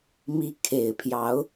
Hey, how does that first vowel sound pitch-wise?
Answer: rising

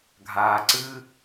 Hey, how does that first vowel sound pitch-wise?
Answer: low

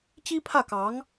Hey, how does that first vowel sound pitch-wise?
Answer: high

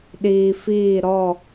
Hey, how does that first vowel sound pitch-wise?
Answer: low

